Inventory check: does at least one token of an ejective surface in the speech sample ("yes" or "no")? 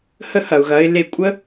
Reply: yes